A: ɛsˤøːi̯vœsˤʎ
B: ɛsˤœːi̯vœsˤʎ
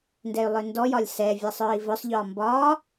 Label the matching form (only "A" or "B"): B